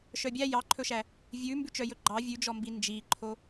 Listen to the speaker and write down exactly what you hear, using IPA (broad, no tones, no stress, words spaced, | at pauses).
ʃœbʲæ jɑǃʰɵʃæ | vʲʉ mbʉt͡ʃœjɵɡ͡ǃɑ vʲʉd͡ʒɔmbi nd͡ʒiǃʰo